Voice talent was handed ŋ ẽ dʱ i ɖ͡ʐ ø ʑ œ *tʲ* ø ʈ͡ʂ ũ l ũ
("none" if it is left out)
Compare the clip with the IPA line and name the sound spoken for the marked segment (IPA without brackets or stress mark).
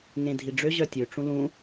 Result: tʲ